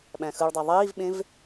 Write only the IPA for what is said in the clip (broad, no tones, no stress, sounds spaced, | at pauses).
ɓ æ̃ x ɯ ɭ dˤ æ ðˤ iː v ɓ ẽ v